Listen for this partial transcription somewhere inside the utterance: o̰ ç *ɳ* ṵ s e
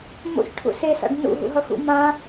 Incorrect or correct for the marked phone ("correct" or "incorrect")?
incorrect